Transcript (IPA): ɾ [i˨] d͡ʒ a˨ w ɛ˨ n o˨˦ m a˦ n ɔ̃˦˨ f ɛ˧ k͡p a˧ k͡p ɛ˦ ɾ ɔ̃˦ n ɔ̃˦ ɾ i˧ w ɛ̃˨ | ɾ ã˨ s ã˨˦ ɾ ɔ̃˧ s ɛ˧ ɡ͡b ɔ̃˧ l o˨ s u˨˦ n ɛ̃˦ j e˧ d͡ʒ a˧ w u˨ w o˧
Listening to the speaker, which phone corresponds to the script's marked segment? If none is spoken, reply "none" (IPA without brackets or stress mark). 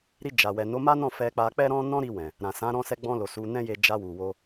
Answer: i˧